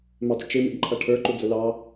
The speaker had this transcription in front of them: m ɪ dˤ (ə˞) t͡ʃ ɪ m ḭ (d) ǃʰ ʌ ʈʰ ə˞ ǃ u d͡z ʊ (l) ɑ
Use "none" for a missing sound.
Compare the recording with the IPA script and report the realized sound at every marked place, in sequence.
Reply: ə, d, l

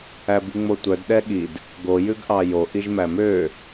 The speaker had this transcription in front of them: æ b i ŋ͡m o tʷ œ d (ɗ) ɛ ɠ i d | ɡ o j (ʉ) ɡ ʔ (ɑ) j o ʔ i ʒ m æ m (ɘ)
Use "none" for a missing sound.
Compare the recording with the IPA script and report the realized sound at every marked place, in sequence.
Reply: ɗ, ʉ, ɑ, ø

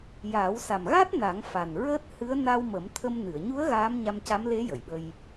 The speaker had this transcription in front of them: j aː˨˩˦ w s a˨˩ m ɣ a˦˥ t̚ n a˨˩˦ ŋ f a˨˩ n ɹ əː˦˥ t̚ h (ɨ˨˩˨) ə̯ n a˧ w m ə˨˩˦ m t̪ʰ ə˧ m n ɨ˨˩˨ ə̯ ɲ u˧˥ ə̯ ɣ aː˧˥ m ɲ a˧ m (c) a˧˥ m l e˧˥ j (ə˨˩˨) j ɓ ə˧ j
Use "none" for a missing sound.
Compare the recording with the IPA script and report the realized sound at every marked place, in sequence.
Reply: ɨ˧˥, c, ə˨˩˨

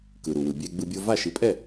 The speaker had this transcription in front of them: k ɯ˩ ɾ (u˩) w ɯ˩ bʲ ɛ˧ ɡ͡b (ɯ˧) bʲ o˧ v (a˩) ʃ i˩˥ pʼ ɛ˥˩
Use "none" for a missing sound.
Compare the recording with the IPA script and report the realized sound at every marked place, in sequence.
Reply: u˩, ɯ˧, a˥˩

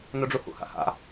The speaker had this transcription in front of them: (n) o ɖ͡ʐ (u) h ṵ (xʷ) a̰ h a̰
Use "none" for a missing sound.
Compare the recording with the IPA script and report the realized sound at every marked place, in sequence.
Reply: n, u, h

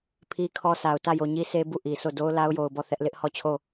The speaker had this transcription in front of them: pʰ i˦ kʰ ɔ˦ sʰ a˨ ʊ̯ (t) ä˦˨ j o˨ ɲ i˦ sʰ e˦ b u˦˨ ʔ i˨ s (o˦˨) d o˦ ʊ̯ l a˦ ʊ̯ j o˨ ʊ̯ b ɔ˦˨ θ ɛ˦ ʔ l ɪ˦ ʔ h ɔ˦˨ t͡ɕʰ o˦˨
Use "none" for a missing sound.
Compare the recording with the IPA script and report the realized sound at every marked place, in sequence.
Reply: t, o˦˨

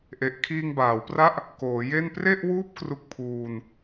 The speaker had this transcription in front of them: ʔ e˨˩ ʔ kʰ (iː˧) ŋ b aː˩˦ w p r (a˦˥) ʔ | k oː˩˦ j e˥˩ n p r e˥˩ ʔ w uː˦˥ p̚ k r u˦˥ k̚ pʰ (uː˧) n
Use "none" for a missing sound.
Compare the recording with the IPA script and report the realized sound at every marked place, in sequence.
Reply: iː˧, a˦˥, uː˧

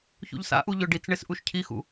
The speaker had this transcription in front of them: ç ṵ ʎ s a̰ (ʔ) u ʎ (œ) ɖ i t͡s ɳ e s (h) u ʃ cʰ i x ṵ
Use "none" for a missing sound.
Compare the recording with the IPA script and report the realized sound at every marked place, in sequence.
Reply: ʔ, ɵ, ʔ

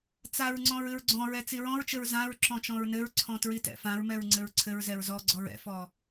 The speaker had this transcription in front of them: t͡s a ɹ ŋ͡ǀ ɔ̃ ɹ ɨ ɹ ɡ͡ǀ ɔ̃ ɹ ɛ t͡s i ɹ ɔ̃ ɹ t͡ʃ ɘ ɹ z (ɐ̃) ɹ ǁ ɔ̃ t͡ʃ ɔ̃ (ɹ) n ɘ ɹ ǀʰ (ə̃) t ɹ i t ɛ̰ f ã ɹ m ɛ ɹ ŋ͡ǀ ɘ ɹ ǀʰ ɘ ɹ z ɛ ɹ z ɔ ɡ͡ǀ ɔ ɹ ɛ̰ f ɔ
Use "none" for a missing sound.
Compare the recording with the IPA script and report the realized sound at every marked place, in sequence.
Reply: ã, ɹ, ɔ̃

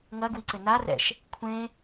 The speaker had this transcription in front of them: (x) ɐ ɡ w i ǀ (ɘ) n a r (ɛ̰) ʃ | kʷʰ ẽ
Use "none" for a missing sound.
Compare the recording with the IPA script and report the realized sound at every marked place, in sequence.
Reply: ŋ, ɘ, ɛ̰

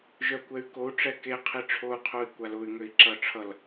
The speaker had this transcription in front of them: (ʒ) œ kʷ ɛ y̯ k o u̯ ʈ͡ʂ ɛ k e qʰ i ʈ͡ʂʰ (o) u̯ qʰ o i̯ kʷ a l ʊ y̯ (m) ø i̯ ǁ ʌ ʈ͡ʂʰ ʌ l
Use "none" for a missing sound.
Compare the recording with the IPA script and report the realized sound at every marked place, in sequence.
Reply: ʒ, o, ŋ

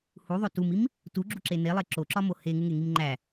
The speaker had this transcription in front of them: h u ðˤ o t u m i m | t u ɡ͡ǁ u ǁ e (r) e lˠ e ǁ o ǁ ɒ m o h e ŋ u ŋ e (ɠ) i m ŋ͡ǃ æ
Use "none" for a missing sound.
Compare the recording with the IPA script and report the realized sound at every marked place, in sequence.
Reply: n, ŋ

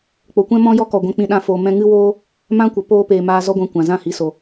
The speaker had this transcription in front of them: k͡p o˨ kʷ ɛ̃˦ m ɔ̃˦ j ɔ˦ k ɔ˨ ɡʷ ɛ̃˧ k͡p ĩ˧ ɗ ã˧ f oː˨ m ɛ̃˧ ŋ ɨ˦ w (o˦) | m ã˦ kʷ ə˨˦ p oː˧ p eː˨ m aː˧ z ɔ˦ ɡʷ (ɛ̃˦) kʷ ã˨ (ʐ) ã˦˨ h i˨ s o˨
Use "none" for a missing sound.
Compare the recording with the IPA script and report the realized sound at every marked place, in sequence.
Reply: oː˦, ɛ̃˧, z

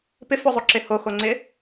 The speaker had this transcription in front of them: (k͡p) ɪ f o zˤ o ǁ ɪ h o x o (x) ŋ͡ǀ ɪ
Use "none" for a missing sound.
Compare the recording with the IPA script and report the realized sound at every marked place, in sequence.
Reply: p, none

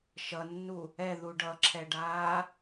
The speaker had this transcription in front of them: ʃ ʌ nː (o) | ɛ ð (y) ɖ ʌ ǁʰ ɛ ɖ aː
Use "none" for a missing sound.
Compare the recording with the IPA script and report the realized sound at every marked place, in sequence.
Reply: u, u

